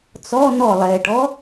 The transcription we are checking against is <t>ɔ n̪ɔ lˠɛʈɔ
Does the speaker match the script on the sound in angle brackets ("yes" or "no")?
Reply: no